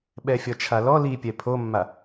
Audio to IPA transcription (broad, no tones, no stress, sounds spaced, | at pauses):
ɓ ɛ fʲ ɔ t͡ʃʰ a l ɔ l i pʲ ɛ pʰ o mː a